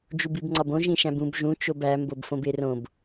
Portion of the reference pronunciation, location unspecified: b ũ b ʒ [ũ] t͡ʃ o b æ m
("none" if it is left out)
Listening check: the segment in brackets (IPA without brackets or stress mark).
ũ